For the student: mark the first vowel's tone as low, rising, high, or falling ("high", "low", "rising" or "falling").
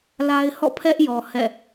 high